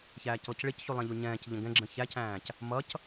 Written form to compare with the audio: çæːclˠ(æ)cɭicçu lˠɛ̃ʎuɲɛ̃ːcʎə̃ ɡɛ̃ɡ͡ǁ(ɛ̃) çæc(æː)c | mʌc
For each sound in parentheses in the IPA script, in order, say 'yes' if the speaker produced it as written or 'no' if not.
no, no, no

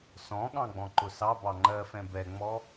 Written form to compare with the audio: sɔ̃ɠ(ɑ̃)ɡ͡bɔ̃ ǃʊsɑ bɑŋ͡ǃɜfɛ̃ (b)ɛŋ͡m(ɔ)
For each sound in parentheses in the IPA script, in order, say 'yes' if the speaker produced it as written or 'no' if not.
yes, yes, yes

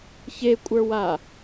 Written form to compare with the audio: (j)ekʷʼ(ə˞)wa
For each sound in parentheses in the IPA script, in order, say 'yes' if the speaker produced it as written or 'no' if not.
no, yes

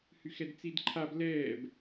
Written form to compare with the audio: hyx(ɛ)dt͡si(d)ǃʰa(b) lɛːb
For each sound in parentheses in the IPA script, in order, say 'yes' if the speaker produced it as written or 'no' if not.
yes, yes, yes

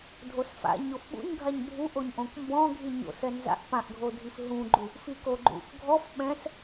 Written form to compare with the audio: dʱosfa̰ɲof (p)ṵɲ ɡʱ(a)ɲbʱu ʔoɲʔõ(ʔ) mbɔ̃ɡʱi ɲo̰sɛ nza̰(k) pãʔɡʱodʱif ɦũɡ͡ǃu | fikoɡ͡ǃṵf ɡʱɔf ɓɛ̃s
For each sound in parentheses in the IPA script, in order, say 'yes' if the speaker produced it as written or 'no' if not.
no, yes, no, no

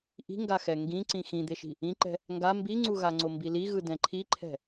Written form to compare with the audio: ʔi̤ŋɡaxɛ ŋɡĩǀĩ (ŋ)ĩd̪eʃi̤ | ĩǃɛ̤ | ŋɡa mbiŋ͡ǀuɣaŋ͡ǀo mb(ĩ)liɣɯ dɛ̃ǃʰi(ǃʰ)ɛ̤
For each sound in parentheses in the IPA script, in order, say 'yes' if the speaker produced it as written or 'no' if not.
no, no, yes

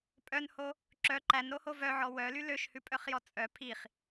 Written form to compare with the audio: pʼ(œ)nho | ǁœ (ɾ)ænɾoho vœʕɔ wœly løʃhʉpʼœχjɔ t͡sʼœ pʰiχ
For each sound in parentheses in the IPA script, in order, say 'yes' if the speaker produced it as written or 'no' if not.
yes, no

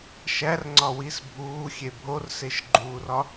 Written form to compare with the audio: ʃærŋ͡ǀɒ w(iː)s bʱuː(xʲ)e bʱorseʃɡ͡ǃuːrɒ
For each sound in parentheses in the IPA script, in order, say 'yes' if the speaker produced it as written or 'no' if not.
no, yes

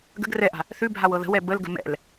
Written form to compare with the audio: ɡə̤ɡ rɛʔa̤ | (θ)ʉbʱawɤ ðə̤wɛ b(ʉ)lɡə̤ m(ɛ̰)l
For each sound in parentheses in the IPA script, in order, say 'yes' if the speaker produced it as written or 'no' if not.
yes, no, yes

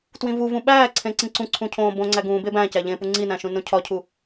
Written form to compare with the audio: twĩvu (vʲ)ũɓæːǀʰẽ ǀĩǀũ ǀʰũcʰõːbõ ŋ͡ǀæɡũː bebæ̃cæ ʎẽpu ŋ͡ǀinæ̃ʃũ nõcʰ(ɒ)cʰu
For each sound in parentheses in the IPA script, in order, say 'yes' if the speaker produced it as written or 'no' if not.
no, yes

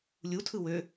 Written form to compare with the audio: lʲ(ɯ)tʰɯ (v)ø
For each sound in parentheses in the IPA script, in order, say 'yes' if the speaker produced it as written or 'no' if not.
no, no

